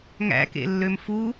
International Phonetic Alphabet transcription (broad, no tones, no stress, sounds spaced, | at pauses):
ŋ æ̰ k ḛ lː ø m f u